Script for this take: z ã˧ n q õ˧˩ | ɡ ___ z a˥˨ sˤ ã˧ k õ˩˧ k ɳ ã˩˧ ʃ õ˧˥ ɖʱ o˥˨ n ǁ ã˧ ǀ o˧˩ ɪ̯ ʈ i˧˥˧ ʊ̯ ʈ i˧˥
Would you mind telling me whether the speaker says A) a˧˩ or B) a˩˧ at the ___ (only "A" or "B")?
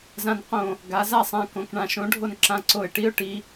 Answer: B